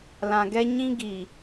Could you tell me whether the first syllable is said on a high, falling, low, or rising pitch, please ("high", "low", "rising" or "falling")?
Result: low